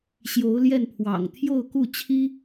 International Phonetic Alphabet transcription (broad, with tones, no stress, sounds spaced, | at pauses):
ɕ j o˧˥ ʊ̯ l j ɛ˥˩ n pʰ w ɑ̰˨˩ ŋ t̪ʰ j o˥˧ ʊ̯ k u˥˩ t͡ɕʰ i˥